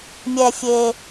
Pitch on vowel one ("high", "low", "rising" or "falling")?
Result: low